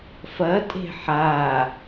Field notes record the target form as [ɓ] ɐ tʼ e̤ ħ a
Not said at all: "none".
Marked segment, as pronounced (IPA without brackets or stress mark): f